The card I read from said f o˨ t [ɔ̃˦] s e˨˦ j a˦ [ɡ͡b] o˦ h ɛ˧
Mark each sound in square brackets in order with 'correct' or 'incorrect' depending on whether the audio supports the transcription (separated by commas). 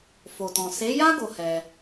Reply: incorrect, incorrect